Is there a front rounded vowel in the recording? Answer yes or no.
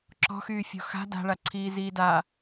yes